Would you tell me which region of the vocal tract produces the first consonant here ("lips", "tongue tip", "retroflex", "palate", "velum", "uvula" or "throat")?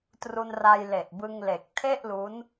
tongue tip